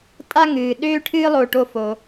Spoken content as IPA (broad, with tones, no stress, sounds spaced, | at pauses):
tʼ a˥ ŋ ɨː˩ ɗ øː˥ ʈʰ ɨː˥ lˠ o˧ ʈ o˧ f o˩